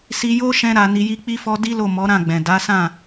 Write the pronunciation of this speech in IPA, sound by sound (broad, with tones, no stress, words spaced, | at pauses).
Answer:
si˧jo˦ ʃɛ̃˦ɾa˧ ni˧ji˦k͡pi˦fɔ˦ di˦lo˦˨ mɔ˨˦ɾã˦˨ɡ͡bɛ̃˨ da˨˦sã˦˨